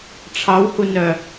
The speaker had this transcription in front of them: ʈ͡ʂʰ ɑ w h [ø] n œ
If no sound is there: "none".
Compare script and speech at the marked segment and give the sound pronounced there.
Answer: u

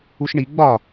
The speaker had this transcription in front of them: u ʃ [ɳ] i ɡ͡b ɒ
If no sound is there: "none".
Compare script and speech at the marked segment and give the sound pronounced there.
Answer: ɳ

